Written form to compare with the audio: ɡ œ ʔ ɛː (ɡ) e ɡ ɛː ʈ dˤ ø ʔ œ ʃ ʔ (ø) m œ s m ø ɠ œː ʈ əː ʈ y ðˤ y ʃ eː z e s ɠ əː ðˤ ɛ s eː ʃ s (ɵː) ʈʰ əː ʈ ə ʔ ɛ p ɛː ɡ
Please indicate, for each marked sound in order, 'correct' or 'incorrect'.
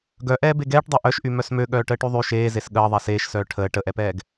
incorrect, incorrect, incorrect

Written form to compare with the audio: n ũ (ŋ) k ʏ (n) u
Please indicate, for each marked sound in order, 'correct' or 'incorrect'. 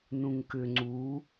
correct, incorrect

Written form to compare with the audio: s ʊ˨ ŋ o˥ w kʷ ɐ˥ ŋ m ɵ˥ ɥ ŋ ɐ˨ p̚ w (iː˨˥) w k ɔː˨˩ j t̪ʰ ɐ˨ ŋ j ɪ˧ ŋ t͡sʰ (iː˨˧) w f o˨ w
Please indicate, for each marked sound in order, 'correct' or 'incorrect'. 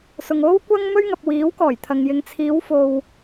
correct, correct

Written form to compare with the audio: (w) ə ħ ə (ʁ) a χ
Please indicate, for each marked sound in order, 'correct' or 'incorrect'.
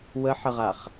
correct, correct

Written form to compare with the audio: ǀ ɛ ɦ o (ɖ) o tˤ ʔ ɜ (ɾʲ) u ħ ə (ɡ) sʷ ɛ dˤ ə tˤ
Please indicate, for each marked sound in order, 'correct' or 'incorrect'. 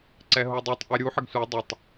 incorrect, correct, correct

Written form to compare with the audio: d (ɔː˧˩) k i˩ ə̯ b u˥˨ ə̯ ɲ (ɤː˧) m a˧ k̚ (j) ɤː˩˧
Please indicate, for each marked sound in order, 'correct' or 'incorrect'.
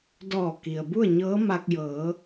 correct, incorrect, correct

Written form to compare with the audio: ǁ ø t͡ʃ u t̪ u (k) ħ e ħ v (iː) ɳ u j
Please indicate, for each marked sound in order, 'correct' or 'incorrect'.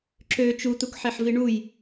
correct, incorrect

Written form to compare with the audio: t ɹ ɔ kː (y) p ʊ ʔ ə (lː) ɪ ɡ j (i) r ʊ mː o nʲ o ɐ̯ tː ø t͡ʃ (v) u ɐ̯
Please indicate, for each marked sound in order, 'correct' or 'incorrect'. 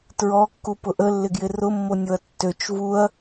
incorrect, correct, incorrect, correct

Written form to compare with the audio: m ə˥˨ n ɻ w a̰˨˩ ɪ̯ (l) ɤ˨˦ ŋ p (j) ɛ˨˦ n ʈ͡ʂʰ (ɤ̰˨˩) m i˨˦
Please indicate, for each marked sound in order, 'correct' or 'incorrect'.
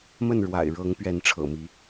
incorrect, incorrect, correct

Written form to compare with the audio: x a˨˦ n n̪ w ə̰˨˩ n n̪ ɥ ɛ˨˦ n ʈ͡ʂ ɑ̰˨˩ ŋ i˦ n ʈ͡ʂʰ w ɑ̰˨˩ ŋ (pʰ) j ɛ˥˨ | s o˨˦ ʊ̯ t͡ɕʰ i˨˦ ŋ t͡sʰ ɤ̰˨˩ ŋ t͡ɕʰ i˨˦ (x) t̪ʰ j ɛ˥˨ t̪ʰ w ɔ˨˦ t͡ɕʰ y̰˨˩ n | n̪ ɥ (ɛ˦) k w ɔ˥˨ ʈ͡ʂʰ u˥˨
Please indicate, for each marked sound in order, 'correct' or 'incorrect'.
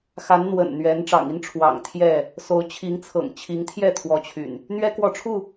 incorrect, incorrect, correct

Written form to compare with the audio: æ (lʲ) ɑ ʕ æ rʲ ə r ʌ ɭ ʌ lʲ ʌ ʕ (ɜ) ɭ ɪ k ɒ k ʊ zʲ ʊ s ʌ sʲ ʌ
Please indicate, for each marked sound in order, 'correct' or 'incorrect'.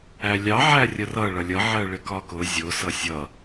correct, correct

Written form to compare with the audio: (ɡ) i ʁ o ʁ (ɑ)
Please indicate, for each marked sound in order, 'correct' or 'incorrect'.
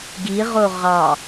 correct, correct

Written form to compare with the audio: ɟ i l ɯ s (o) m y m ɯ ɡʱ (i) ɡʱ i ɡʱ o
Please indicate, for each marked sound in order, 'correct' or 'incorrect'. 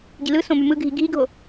incorrect, correct

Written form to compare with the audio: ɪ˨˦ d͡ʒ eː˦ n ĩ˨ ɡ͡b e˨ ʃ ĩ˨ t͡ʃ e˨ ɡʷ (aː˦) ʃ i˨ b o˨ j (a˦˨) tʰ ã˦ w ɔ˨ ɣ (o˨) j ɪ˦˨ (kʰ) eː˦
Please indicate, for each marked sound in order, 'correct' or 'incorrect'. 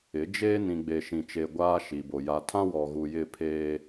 correct, incorrect, incorrect, incorrect

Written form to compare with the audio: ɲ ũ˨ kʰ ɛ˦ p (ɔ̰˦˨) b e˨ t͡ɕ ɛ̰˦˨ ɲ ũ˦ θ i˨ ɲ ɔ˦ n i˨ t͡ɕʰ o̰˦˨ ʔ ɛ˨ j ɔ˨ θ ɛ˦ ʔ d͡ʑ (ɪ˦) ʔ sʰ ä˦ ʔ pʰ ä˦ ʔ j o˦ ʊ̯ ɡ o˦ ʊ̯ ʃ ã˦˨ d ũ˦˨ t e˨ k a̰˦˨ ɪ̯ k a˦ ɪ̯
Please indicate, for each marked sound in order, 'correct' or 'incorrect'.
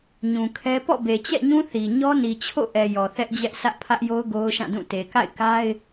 correct, incorrect

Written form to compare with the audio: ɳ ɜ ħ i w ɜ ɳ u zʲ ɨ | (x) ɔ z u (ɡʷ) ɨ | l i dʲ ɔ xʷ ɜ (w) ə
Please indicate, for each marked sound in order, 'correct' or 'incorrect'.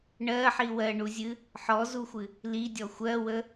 incorrect, incorrect, correct

